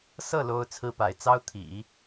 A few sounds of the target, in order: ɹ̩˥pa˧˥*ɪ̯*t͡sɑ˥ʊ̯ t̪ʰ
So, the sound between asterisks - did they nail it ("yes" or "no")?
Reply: yes